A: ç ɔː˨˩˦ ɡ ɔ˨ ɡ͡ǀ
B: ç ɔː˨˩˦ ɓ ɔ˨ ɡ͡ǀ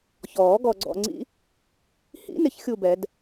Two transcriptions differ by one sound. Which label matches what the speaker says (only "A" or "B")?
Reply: A